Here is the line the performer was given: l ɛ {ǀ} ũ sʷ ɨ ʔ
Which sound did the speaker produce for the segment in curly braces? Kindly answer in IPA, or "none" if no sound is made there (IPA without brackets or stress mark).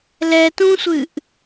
t